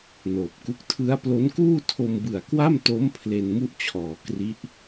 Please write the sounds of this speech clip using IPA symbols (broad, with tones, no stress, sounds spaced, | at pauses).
n oː˨˩ p̚ k u˥˩ k̚ tʰ ɯ˦˥ a̯ p l o˦˥ n k uː˥˩ tʰ o˧ m b ɯ˨˩ a̯ k w a˥˩ m t o˦˥ m pʰ l e˧ n m u˥˩ ʔ t͡ɕʰ ɔː˨˩ k r i˦˥ ʔ